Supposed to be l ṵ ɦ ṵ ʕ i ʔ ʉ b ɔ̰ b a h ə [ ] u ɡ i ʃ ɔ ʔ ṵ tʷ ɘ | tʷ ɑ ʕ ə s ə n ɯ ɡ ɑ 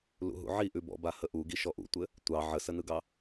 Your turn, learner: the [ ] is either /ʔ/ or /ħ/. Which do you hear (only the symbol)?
ʔ